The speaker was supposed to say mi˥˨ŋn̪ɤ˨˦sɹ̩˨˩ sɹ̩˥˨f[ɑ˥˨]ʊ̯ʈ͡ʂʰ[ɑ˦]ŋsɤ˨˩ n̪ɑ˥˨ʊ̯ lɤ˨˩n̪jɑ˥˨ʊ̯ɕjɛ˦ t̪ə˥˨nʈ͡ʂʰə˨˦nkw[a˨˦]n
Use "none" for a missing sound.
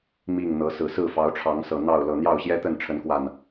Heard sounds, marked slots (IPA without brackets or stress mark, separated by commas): ɑ˨˦, ɑ˨˦, a˨˩